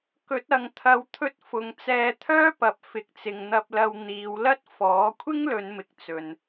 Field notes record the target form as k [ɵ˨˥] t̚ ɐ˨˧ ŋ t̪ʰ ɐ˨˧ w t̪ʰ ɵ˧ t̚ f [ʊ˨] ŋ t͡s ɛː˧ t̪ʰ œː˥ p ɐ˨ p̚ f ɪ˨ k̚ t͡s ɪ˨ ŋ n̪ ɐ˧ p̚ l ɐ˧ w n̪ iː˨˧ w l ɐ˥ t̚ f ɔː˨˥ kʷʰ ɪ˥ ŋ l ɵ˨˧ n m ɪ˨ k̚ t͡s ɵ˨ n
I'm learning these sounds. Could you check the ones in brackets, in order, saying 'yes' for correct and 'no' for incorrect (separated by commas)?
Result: yes, yes